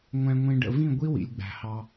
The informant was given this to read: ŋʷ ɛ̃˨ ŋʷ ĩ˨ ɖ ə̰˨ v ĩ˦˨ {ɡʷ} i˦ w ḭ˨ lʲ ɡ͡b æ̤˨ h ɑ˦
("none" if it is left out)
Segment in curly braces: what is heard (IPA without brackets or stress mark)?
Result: ɡʷ